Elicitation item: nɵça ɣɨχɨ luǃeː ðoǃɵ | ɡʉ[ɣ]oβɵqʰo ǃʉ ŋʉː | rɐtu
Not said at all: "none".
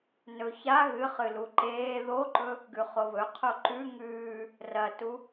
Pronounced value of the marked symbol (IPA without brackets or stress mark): χ